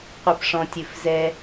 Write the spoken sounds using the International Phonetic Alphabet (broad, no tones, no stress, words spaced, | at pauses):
qʷɛpʂɔ̃tʲɨfzɛ